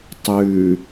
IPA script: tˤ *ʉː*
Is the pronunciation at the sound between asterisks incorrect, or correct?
correct